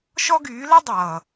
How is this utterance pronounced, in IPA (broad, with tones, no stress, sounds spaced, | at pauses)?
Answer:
ʃ ɔ˦ ɡ yː˨˦ l ɤ˦ dˤ ʌː˨